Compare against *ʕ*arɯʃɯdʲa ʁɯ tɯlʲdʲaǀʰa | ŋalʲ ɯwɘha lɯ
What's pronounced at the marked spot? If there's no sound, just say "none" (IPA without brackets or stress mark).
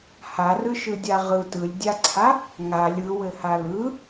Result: h